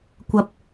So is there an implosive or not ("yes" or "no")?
no